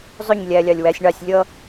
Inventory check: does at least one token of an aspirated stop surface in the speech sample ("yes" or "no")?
no